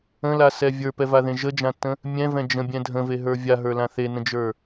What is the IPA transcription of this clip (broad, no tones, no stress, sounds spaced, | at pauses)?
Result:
ə̃ l a s ɛ vʲ ə˞ p ɛ v a ð ẽ ʒ ə d͡ʒ ã tː ə̃ | mʲ ɛ̃ v ɛ̃ d͡ʒ ə̃ bʲ ɛ̃ dʱ ə̃ v e ɦ ə˞ vʲ a ɦ ə˞ l ã θ e n ə̃ d͡ʒ ə˞